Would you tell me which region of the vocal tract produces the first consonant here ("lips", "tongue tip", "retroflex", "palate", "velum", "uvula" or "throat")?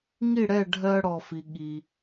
velum